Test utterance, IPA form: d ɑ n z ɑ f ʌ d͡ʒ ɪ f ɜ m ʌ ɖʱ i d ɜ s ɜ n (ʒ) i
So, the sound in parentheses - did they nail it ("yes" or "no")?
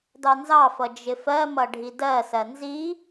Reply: no